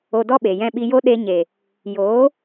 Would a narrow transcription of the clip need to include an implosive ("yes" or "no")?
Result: yes